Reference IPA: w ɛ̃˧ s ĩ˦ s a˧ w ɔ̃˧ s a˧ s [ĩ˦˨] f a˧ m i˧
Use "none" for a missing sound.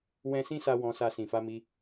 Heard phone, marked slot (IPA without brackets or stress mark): ĩ˨